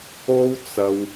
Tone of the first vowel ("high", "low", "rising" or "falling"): high